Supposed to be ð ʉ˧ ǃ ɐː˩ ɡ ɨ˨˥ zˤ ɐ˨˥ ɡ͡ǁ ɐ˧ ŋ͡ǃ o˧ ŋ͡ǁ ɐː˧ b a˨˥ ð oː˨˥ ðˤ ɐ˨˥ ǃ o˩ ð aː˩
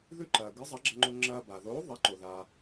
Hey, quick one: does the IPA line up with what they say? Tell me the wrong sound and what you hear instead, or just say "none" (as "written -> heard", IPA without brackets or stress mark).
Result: a˨˥ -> a˩